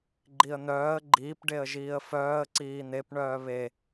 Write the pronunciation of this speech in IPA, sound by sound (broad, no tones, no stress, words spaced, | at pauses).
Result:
ɡ͡ǃiə̯n̪œːə̯ ɡ͡ǃiːp ɖeə̯ʒiːə̯fœːə̯ ǀiːn̪ep ɳœːβe